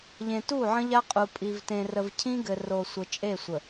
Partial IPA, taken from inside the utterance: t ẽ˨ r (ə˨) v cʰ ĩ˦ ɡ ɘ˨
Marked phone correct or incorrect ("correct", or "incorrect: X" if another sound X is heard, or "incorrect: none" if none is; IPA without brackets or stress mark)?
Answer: correct